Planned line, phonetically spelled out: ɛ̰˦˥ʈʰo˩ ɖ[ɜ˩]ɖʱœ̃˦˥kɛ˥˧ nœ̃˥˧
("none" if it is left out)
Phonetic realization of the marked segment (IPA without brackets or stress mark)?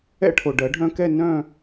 ɜ˨˩˦